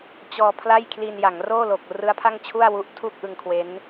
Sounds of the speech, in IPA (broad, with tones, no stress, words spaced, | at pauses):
t͡ɕɔː˧pʰla˥˩j kʰli˧n ja˩˦ŋroː˥˩ lo˨˩k̚ rɯ˦˥a̯pʰa˥˩ŋt͡ɕʰu˥˩a̯wu˦˥ʔ tʰu˥˩k̚ʔɯ˧ŋkʰwe˦˥n